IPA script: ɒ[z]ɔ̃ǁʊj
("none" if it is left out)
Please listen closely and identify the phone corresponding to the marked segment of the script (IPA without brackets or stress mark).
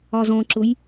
z